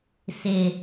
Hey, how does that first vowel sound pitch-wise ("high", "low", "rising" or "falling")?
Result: low